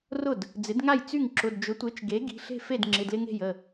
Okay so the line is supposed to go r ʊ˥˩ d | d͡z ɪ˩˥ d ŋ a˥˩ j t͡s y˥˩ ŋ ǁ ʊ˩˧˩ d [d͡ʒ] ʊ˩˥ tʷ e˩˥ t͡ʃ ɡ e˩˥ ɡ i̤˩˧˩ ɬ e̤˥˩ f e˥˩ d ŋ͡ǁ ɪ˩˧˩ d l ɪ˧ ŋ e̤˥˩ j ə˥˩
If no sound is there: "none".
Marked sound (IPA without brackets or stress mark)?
d͡ʒ